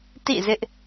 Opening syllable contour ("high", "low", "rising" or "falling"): falling